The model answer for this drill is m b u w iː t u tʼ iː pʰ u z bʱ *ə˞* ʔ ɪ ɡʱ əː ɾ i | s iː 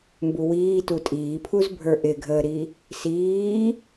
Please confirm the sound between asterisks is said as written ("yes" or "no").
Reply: yes